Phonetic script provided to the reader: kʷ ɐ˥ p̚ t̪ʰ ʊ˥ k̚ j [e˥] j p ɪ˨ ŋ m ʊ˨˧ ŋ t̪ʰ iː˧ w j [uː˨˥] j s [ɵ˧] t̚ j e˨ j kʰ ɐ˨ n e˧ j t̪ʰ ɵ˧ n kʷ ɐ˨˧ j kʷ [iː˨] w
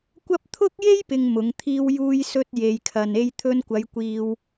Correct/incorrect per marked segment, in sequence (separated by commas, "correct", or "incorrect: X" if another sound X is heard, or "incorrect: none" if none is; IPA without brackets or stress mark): correct, incorrect: uː˧, correct, correct